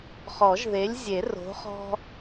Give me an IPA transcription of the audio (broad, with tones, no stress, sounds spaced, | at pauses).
χ ɔ˨˩˦ ʒ ð e˨˥ lʲ zʲ e˨˩˦ r o̤˨˥ χ ɔ̤˦